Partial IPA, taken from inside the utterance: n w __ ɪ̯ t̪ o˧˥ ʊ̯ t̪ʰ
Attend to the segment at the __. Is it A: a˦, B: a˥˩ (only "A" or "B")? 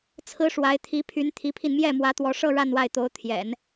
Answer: B